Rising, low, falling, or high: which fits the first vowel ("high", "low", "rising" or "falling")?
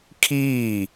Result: falling